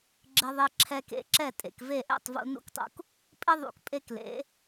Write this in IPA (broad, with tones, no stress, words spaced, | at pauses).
ɡ͡ǁɪ˧ðˤe˧ ǁʰɛ˧kḛ˩˥ǁɛ˥˩ tʼḛ˩kve˥˩ʔɛ̰˥˩tˤ vṵ˧nṵ˥˩ktˤṵ˧k | pʼɪ˥ðˤṵ˩k pʼe˥klḛ˩˥